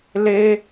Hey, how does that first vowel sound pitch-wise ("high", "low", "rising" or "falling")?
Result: high